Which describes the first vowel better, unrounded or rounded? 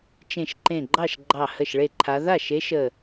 unrounded